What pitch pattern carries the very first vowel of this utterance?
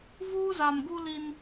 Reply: high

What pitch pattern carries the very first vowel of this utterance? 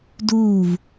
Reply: falling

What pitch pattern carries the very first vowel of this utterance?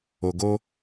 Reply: low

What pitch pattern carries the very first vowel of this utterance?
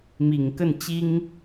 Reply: low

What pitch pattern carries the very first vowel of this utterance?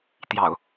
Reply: low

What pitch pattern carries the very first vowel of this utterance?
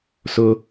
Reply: high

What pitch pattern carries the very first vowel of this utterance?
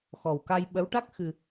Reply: low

